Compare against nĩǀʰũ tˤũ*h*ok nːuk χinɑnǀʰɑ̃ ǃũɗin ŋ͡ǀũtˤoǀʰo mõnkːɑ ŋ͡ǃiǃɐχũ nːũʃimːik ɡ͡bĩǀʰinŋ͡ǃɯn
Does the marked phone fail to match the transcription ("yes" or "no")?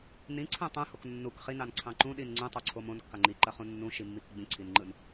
no